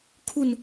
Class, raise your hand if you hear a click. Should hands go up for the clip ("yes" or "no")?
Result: no